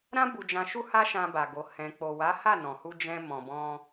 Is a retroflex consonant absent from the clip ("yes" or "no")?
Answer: yes